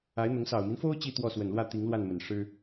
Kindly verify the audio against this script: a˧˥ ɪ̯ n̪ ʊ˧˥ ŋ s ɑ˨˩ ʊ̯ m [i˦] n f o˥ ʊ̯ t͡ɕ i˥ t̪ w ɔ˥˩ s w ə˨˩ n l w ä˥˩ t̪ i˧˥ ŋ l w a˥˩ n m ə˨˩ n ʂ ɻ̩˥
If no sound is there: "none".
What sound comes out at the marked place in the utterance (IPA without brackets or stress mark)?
i˦